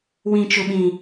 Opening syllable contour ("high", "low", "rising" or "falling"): low